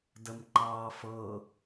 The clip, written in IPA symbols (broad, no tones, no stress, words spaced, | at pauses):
dəmǃɑːfɤ